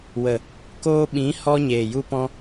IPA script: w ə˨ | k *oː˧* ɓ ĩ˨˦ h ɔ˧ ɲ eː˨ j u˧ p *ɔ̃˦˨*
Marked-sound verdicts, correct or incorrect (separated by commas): correct, incorrect